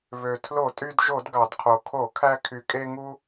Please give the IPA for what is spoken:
β ø˩ tʰ l o˧˩˧ tʼ y˧ d ʒ o˧˩˧ d ɡ ɑ˩ d qʰ o˩ kʰ o˧˩˧ kʰ æ˧ kʰ y˩ kʼ e˧ ŋ u˧

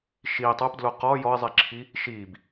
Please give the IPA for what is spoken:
ʃ i tˤ o p d l o q ɔ j ɔ ɪ̯ zˤ i ǁʰ i | ʃ i b

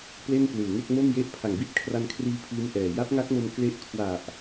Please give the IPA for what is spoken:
p l e˥˩ n p l ɯː˨˩ ŋ e˥˩ k̚ m o˥˩ m j e˥˩ ʔ pʰ a˨˩ ŋ b i˦˥ t̚ kʰ r a˧ n kʰ r iː˧ pʰ iː˦˥ m ʔ ɛː˨˩ j a˦˥ p̚ ŋ a˦˥ k̚ m o˧ m k l e˦˥ ʔ kʰ w a˨˩ ʔ

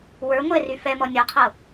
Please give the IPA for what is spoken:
w ə˞ ŋʷ ɛ r y f ɛ m ɔ nʲ ɔ qʰ ɤ

